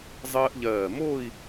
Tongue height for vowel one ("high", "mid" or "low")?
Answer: mid